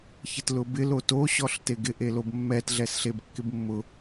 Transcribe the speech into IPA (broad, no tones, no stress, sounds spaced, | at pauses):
ç ɪ t l ʊ b ɪ l o t o ɕ ɔ ɬ t e ɡ ɪ ʔ e l o b mː ɛ t ɮ ɛ s ɬ e b kː ɪ b mː ʊ